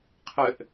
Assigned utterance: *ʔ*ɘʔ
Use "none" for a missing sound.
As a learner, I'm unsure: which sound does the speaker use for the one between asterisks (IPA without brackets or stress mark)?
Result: qʰ